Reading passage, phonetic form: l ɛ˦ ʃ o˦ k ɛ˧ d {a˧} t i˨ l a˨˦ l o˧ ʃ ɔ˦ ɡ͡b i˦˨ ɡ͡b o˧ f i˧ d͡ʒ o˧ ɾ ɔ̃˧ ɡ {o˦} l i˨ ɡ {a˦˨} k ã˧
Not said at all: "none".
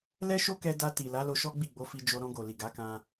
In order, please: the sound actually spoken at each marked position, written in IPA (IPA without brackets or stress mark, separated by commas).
a˧, o˨, a˨˦